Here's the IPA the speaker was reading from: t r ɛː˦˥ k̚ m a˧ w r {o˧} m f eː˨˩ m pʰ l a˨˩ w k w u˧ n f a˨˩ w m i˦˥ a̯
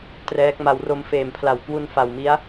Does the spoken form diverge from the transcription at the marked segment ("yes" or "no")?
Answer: no